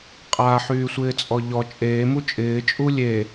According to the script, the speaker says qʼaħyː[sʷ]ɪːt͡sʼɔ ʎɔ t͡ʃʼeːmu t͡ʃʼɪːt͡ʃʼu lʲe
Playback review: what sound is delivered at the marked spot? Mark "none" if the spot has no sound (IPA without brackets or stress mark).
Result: sʷ